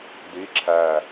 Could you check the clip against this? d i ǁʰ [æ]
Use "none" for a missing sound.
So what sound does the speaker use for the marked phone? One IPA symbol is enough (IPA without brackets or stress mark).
æ